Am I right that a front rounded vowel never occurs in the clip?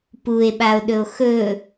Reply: yes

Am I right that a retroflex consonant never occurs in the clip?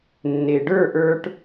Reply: no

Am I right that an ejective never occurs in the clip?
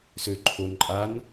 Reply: no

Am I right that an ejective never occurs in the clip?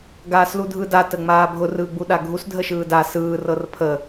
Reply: yes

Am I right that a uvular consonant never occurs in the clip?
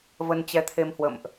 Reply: yes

